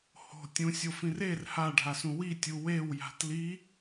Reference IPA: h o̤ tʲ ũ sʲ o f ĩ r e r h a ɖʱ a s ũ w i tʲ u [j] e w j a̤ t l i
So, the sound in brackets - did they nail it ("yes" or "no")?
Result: no